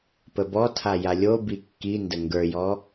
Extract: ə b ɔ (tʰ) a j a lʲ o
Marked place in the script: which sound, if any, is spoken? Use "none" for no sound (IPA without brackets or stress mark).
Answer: tʰ